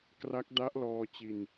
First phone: k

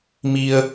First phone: m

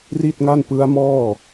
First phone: r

